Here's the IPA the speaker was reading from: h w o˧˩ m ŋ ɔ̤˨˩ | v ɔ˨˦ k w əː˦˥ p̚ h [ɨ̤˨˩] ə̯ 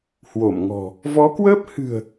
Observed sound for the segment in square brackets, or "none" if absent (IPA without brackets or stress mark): ɨ̤˨˩